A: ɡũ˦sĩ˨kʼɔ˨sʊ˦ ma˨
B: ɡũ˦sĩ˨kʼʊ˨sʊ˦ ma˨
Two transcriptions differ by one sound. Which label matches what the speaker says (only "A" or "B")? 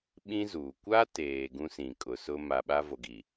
B